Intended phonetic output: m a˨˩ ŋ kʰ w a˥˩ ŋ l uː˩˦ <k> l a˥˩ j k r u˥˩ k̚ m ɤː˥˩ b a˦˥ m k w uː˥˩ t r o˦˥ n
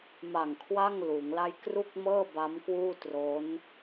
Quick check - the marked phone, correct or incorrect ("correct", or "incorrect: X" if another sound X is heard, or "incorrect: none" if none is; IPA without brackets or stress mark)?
incorrect: ŋ